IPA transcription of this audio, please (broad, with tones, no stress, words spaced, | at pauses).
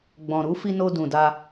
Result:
ɡ͡bɔ̃˨ɾu˨˦ fi˧no˧ dũ˨da˧